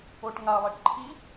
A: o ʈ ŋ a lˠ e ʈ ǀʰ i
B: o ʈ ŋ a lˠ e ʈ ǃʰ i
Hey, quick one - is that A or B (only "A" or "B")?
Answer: B